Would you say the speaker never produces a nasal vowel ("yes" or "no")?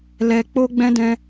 no